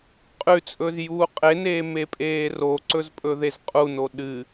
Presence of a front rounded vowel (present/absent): absent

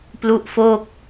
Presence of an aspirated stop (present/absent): absent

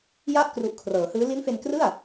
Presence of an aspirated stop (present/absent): present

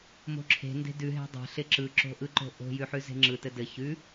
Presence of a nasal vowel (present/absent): absent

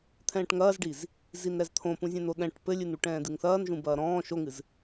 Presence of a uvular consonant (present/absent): absent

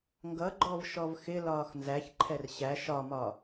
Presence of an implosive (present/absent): absent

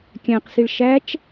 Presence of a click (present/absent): absent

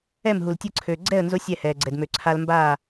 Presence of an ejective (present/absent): absent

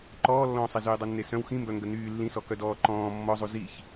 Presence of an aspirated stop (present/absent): absent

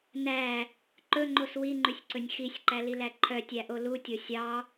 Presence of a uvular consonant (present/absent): absent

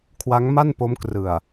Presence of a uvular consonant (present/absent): absent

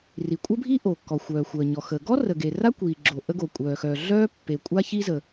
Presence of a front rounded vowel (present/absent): present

